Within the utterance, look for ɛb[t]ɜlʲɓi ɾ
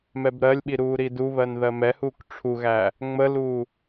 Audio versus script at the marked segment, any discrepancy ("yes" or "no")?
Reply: yes